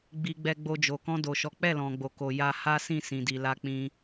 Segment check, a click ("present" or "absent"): absent